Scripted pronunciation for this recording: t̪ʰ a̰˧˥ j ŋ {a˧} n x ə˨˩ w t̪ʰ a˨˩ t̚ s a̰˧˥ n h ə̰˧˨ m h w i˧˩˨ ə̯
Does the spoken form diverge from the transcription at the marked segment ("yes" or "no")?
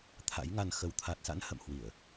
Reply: no